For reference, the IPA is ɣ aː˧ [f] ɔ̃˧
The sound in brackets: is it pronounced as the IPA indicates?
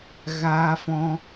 yes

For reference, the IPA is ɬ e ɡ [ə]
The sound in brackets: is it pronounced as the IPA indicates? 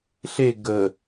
yes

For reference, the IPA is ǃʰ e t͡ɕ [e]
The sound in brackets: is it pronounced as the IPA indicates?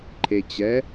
no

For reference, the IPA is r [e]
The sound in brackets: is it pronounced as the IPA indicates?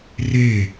yes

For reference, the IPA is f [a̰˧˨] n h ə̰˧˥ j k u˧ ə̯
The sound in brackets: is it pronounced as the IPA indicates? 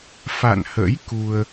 yes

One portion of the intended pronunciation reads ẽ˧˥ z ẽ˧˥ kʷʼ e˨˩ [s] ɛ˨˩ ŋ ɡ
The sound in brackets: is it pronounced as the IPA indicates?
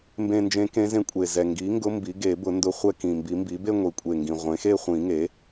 no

